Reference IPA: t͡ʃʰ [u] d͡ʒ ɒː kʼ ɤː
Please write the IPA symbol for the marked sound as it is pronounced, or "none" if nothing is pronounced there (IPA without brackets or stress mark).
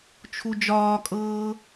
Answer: u